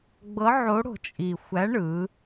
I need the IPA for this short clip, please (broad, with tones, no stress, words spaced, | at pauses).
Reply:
ɡ͡bɤ˨˥ʕo˨˥ɽo̤˨˩ t͡ʃʼi˨˩ xʷæ˨˥ɳɯ˩˧